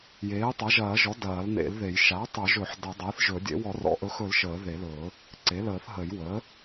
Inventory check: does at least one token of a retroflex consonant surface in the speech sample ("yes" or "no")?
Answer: no